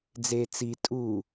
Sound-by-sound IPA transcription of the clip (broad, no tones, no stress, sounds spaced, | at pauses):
d͡z e t͡s i tʼ u